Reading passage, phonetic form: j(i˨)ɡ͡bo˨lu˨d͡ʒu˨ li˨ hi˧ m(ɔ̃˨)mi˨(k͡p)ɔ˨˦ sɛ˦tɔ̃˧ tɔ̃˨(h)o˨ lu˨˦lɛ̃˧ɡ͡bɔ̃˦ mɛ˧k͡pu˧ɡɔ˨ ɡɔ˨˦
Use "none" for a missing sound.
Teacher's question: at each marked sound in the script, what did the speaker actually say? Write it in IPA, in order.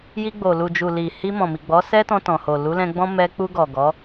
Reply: i˧, ɔ̃˨, ɡ͡b, h

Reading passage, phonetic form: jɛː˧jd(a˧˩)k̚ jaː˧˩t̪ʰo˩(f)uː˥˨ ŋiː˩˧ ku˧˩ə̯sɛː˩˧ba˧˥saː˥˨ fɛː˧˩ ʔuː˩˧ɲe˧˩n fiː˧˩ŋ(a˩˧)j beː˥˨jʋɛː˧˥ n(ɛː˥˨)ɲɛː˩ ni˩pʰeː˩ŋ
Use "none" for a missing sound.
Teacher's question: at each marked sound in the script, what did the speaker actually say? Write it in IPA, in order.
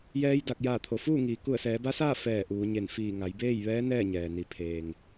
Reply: a˧˩, f, a˩˧, ɛː˥˨

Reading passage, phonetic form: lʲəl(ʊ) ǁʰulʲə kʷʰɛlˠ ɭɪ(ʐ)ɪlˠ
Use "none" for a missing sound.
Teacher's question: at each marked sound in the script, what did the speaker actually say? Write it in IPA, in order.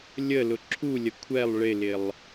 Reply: ʊ, l

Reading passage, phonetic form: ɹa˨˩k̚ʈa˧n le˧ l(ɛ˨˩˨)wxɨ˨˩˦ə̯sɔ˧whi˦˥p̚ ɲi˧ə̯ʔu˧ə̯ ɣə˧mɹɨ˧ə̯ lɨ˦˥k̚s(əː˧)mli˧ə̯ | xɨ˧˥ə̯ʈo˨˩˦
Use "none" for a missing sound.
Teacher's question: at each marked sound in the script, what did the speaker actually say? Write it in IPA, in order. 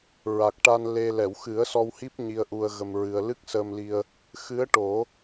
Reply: ɛ˨˩˨, əː˧

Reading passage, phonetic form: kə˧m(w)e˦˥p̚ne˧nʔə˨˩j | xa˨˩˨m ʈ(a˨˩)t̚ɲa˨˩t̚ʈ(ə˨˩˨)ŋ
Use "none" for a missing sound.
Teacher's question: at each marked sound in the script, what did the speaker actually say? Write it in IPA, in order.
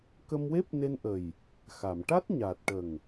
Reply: w, a˦˥, ə˨˩

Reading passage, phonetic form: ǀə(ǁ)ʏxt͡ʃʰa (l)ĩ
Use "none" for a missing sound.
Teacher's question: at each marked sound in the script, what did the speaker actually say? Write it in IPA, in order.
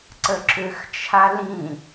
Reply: ǁ, l

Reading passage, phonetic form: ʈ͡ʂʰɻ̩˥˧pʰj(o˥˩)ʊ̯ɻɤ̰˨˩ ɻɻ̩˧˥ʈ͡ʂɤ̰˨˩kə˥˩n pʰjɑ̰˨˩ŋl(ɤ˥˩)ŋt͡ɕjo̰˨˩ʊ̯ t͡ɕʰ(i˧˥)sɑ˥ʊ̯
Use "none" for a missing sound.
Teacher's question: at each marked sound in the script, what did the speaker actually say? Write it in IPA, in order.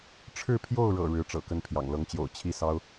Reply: o˥˩, ɤ˧˥, i˥˩

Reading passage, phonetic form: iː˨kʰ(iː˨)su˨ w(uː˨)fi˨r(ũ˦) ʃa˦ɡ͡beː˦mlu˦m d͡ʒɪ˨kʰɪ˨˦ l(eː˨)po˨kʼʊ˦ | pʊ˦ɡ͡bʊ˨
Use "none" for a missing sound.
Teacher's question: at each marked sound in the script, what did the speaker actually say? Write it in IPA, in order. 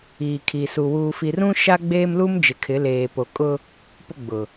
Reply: i˨, uː˨, ũ˦, eː˨

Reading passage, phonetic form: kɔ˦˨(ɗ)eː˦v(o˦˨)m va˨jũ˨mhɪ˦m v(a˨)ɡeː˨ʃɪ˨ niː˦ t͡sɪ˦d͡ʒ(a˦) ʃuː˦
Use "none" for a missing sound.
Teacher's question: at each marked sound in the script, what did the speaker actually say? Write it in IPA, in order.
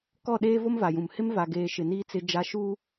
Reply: ɗ, o˦, a˨, a˦

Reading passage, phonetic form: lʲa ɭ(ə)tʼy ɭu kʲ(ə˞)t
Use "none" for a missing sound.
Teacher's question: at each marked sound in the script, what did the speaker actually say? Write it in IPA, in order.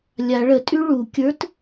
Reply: ə, ə˞

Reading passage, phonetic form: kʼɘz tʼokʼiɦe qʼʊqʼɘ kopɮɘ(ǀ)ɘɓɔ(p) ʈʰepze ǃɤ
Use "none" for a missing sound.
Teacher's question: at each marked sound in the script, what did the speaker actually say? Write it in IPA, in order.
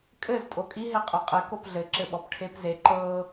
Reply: ǁ, p

